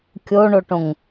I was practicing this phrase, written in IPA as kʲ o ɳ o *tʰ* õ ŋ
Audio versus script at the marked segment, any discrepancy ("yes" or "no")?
yes